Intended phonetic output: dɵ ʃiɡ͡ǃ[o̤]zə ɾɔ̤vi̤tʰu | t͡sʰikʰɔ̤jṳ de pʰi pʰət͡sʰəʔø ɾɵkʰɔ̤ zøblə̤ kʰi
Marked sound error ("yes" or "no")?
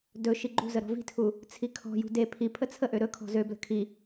yes